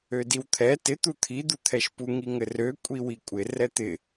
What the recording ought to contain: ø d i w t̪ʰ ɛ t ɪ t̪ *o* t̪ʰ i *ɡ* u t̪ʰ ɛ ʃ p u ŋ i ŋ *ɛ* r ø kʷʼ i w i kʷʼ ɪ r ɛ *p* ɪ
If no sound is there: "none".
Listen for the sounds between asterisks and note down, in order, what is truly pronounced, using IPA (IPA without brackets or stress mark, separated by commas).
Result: u, d̪, ɘ, t̪